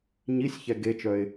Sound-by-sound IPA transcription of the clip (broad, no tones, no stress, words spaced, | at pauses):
ɲisʲçɛ ɡet͡ʃœɪ̯